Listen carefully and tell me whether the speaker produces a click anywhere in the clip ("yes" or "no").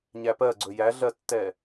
yes